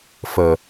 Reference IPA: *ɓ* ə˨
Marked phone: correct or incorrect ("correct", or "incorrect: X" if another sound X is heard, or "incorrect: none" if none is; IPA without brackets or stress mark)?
incorrect: f